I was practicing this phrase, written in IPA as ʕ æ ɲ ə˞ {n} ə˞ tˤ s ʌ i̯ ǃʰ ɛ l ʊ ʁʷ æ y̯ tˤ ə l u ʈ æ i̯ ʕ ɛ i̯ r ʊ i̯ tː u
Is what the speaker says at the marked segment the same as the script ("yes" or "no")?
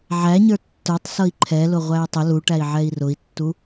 no